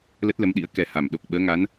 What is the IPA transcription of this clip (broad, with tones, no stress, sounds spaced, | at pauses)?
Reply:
l ə˦˥ t̚ l ə˨˦ m ɗ ḭ˧˥ ə̯ k ɛ˨˩ h a˧˩ m ɗ o˨˩ k̚ ɓ əː˨˦ ŋ a˨˦ n